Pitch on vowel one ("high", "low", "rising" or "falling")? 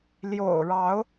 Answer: low